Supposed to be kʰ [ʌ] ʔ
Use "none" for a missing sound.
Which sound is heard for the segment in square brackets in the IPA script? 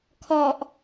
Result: ɔ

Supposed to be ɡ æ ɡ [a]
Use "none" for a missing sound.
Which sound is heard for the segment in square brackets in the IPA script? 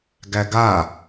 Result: a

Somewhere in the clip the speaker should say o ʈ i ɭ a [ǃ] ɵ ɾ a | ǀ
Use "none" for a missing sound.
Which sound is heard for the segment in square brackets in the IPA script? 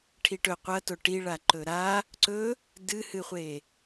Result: ǃ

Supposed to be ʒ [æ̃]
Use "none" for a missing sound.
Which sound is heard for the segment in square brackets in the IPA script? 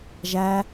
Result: æ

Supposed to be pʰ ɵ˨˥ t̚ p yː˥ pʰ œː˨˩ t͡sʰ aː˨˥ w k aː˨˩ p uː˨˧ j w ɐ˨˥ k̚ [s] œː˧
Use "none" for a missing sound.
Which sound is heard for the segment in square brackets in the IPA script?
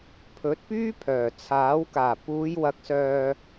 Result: s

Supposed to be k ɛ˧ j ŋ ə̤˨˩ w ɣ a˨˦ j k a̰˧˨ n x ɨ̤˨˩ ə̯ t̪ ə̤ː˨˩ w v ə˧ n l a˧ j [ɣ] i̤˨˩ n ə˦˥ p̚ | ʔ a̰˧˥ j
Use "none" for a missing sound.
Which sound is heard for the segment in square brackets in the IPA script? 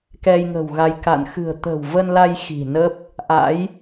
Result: x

